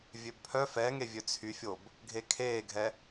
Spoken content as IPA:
vʲ ø b pʰ œ f ɛ ŋ e vʲ ø t͡sʰ y fʲ o b | ɡʱ e kʰ eː ɡʱ ɛ

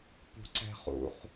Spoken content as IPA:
p ṳ ǀ ɛ̤ χ ṵ χ

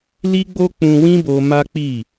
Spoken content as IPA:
l i˦ ɡ͡b o˦ k͡p ũ˧ w ĩ˦ b o˧ m a˦ k͡p i˦˨

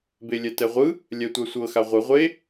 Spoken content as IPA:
b e lʲ ɛ t ɛ ʁʷ ɯ | lʲ ɛ tʷ a sʷ ɤ x a ʁʷ ɯ ʁʷ e

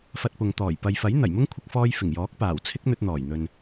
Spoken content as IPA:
f ɐ˧ t̚ p ʊ˨ ŋ t̪ ɔː˨˩ j p ɐ˨ j f ɐ˨˥ j n̪ ɐ˨˩ j m ʊ˥ ŋ kʷʰ ɪ˧ k̚ f ɔː˧ j f ɪ˨˩ ŋ j ɔː˨˥ k̚ p aː˨˩ w t͡sʰ ɪ˥ k̚ n̪ ɵ˧ t̚ n̪ ɔː˨˩ j n̪ ɵ˨ n

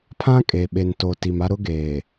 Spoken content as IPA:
pʰ ã˦ kʼ e˨ ɓ e˨ n t o˨ t i˨ m a˦ ɾ ʊ˦ ɡ eː˨

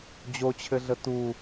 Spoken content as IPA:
d͡ʑ o t͡ɕʰ ɘ ɮ ə t u

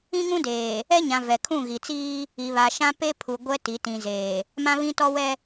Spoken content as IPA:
ĩ˦ ŋ ũ˦ d eː˨ | ɛ˦ ɲ ã˨ v ɛ˨ kʰ ũ˦˨ ɣ i˨ t͡s iː˦ | i˨ β a˨ ʃ ã˦ p e˦ pʰ u˨ ɡʷ ɛ˦ t i˨˦ t ĩ˨ z eː˨ | m ã˦ β ĩ˦ t ɔ˦ w ɛ˦

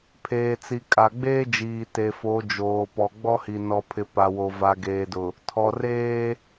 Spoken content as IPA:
pʰ eː˨ t͡s i˨ kʼ a˨ ɡ͡b eː˦ d͡ʒ iː˨ t e˨ f o˨˦ d͡ʒ oː˨ p ɔ˨ ɡ͡b ɔ˦ h i˨ n ɔ˨ pʰ ɪ˨ p a˨ w o˨ v a˨ ɡ eː˨ d ʊ˨ | tʰ ɔ˨ r eː˦

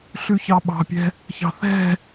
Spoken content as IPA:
ɬ ʉ ç ɑ ɓ ɑ̤ pʲ ɛ̤ | ç ɑ̤ θ ɛ̤

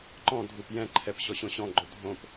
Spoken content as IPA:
ǃ ɔ̃ dʱ u p j ɛ̃ ǃʰ ɛ p ɕ ɔ ɕ õ ɕ ɔ̃ ɡ͡ǃ o dʱ õ p

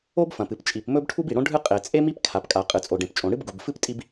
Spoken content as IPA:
o˥ b f ɐ̃˩ p ɨ˩ p t͡ʃʼ i˩ p m ɵ˥ b ʈʰ u˥ b i˩ ɽ õ˥ ɖʱ ɨ˥ qʼ e˩ t͡sʼ e˥ m i˥ p kʰ a˩ p kʼ a˩ qʼ ɨ˩ t͡sʼ o˩ ɖ ẽ˩ p t͡ʃʼ õ˩ ɽ ɨ˥ b ɡ u˩ b f ɨ˥ p tʼ i˥ b

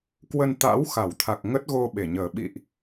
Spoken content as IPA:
k w ə˧ n t̪ a̰˧˥ w x a˧˩ w t̪ʰ a˨˩ k̚ ŋ ə˦˥ t̚ ɣ o˧ ɓ e˧˩ ɲ əː˨˩ ɓ ḭ˧˨ ʔ

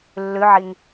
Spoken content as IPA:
lː ʉ ʕ i ŋ

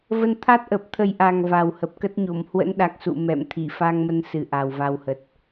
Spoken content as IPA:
v ə˧ n t̪ʰ a˦˥ t̚ ʔ ə˨˩ p̚ t̪ʰ ə˨˩ j ʔ a˨˩ ŋ v a˨˩ w h ə˨˩ p̚ k ə˦˥ t̚ ɲ o˧˩ m h w ə̰˧˥ n ɗ a˨˩ k̚ s ṵ˧˨ m ɛ̰˧˨ m t̪ʰ i˧˩ f a˧ ŋ m ə˧ n s ɨ˨˩ ʔ a˨˩ w v a˧ w h ə˨˩ t̚

